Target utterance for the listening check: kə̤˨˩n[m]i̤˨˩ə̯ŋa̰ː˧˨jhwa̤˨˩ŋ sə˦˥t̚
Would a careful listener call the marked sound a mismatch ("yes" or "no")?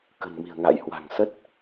no